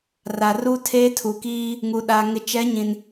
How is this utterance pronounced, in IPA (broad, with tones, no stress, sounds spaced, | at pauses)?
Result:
r a˨ r u˦ tʰ eː˦ tʰ u˨ k iː˦ | ŋ u˨ ɗ aː˨ ŋ ɪ˨ t͡ʃ ɛ˨˦ ɲ ĩ˨ n